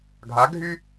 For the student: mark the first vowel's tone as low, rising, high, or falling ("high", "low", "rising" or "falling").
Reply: rising